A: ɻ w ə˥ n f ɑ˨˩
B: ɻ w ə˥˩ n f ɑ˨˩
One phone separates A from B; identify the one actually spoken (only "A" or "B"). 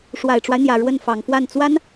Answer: B